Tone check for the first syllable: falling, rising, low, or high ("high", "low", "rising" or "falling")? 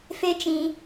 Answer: high